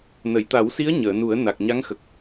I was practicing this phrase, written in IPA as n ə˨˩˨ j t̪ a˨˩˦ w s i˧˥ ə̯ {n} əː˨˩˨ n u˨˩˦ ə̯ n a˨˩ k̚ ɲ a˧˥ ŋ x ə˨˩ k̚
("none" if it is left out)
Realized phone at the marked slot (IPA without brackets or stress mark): ɲ